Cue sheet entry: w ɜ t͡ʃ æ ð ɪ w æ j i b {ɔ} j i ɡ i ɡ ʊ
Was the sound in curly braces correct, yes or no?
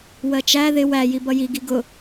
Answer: no